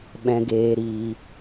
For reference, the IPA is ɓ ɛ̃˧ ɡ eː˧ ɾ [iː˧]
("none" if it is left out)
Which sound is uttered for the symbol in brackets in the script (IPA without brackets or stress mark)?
iː˧